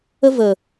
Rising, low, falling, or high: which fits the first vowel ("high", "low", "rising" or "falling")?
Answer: high